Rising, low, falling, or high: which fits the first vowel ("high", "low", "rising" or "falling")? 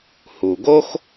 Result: low